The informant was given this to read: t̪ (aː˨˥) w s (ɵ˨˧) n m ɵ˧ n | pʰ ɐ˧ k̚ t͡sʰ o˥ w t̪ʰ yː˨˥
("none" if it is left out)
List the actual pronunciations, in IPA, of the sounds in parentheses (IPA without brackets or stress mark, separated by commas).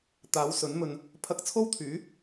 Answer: aː˨˥, ɵ˨˥